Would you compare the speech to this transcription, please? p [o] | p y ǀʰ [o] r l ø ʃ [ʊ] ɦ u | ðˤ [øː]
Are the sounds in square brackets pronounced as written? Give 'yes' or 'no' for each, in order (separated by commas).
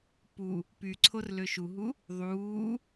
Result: no, yes, no, no